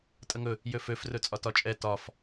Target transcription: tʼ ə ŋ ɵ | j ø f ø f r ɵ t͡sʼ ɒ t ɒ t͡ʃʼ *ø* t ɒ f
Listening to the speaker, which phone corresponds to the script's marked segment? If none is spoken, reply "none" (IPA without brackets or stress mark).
ɛ